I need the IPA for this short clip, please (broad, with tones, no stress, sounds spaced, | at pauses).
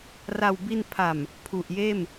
r a˨˩ w b i˧ n pʰ a˨˩ m | pʰ u˨˩ ʔ j eː˥˩ m